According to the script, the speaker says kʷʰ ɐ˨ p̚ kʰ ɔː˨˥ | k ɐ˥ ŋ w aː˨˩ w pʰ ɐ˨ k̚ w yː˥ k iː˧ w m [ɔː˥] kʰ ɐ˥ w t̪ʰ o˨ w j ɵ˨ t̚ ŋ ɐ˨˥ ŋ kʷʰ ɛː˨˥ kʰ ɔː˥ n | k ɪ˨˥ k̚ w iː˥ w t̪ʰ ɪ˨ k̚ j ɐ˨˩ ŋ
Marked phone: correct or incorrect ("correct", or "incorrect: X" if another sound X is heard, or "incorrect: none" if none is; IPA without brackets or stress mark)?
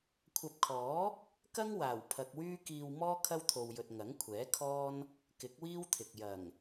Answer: correct